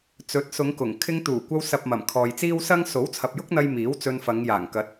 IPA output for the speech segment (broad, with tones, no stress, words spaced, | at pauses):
t͡sɵ˨˥t̚sʊ˨˧ŋkʊ˨˩ŋ kʰɪ˧ŋt̪uː˨˩kʷɐ˧w sɐ˨p̚mɐ˨˩m kʰɔː˨jt͡siː˥wsɐ˥ŋ so˨˥wt͡sʰɐ˨p̚jʊ˥k̚n̪ɐ˧j miː˨˥w t͡sɵ˧nfɐ˨˧ŋjaː˨˩ŋkɐ˨˥t̚